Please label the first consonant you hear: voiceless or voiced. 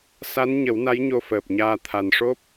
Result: voiceless